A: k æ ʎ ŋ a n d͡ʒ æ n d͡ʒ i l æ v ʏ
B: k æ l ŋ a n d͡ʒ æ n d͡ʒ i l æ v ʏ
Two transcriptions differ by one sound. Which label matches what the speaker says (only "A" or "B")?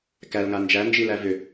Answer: B